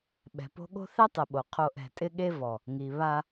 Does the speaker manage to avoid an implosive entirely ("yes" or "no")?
no